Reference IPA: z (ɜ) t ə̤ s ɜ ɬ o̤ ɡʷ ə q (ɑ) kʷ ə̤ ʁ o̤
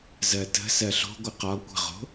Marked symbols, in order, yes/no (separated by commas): yes, no